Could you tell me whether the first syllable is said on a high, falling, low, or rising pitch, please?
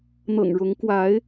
low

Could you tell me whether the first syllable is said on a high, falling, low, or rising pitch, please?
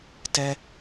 high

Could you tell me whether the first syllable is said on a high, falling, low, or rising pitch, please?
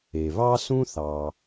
low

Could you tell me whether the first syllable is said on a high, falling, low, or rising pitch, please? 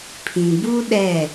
low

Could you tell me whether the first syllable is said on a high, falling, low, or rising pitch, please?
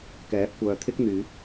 rising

